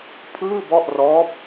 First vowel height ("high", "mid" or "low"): high